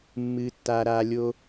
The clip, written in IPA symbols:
mːɨː˦tːaː˦ɾaː˦ lʲo˦

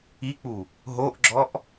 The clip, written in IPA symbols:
ik͡pu | ɦoʔɡ͡ǁɔʔ

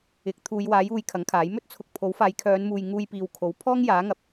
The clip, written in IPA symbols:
ɪ˨˥k̚ t̪ʰuː˨˧jwaː˨˥juː˨j kʰɐ˨˥ŋkʰaː˨˥j mɵ˥t̚t͡sʰʊ˨k̚pʰo˨˥wfaː˨˧j kʰœː˨˧nmuː˨j ŋuː˧jpiː˨w kʰo˨˥w pʰɔː˥ŋjaː˨˥ŋɐ˨p̚

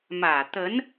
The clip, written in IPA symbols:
mä˨˩t̪ə˧˥n

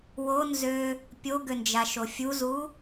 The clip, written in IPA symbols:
wonzø | pʲoɡønd͡ʒaʃo fʲuzu

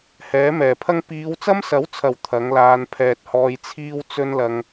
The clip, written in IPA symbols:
hɛː˨˥mɛː˨˩pʰɐ˥ŋ piː˨˧wt͡sɐ˥msɐ˨˥wt͡sʰɐ˨˩w t̪ʰɐ˨˥ŋlaː˧n pʰɛː˨t̚hɔː˧jt͡sʰiː˥w t͡sɵ˥nlɐ˨˧ŋ

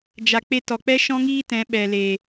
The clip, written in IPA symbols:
d͡ʒa˨ k͡pe˧tɔ˨k͡pɛ˦ ʃɔ̃˦ŋiː˦ tɛ̃˨˦ ɓɛ˨le˨

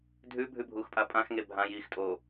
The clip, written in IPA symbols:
dʱʉ bʱʉbʱuːxpʼapʼãx ŋebʱã jiːxtʼo

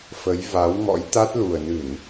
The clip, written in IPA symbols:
fə˨˦j va˨˦wŋɔ̰˧˥jt̪a˦˥t̚ lu˨˩ə̯nɨ˧˩˨n

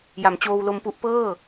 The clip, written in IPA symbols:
ja˩˦mt͡ɕoː˧wlo˧mpu˥˩ʔ pɤː˥˩

